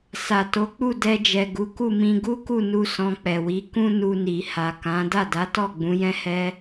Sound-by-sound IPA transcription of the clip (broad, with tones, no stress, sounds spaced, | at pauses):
s a˨ t o˨˦ k͡p u˦˨ d ɛ˧ d͡ʒ ɛ˨ ɡ u˨˦ k u˦˨ m ĩ˧ ɡ u˦ k u˦˨ n u˧ s ɔ̃˧ k͡p ɛ˨ w i˨˦ k ũ˦ n u˧ n i˨ h a˨ k ã˨˦ d a˦˨ d a˨˦ t ɔ˦˨ ɡ͡b ũ˨˦ j ɛ̃˦ h ɛ˦